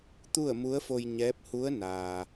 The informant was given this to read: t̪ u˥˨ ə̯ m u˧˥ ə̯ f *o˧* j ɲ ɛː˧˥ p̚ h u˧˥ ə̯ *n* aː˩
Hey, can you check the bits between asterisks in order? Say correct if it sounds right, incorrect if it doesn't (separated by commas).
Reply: correct, correct